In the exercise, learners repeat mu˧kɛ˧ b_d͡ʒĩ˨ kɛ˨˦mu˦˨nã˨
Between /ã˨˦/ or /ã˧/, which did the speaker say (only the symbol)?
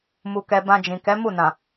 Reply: ã˧